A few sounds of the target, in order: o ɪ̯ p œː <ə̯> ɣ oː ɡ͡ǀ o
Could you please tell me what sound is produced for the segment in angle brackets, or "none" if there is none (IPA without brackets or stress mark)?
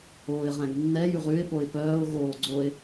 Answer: ʊ̯